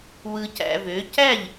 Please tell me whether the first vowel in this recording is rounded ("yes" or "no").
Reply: no